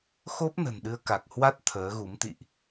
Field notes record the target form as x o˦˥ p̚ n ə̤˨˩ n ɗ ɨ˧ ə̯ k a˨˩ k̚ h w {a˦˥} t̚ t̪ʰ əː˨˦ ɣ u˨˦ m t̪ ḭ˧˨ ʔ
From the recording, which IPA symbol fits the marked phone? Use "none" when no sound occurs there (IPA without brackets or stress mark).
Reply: a˦˥